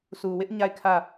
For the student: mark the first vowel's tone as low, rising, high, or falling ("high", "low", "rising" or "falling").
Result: low